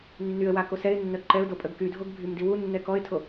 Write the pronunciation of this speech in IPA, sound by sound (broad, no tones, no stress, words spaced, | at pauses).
nːyə̯wa kosɛɪ̯nːœ ǃɛʊ̯do pʼəɡkydʱoɡ bʱymdiwunːɛ kɔɪ̯tʰo